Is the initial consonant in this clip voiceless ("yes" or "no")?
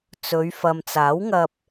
yes